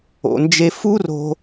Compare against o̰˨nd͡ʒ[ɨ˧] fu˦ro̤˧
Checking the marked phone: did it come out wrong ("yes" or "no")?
yes